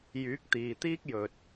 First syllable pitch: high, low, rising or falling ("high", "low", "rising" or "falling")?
rising